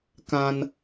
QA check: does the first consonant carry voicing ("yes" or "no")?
no